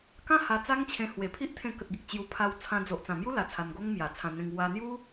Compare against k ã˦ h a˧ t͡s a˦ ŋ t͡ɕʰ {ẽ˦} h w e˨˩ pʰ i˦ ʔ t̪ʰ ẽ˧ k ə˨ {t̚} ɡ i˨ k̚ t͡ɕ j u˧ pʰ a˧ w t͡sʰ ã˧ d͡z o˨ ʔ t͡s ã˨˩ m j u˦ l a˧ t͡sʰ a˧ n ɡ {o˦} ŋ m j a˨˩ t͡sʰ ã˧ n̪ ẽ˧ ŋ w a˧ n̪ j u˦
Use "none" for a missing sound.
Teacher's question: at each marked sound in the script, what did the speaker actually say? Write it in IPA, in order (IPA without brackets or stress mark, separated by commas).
ẽ˧, t̚, o˦